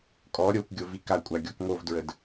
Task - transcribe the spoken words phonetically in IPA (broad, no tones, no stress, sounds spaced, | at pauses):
kʼ ɔ ɾʲ o kʷ ɡʲ o v i k a kʷʼ a ɡʲ ɔ k ŋ o v d ɹ ə d